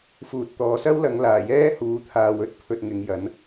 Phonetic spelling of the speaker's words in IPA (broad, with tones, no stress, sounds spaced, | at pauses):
f uː˨ t̚ t̪ ɔː˨˧ s ɐ˥ w l ɐ˨˧ ŋ l aː˨˩ j ɛː˥ h uː˨˥ t̪ʰ aː˨ w ɵ˥ t̚ pʰ ɵ˧ t̚ ŋ ɪ˨˧ ŋ j ɐ˨˥ n